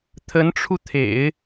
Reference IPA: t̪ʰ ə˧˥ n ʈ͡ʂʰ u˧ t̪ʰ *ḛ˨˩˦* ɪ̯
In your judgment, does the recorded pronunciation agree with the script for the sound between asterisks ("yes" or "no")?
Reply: yes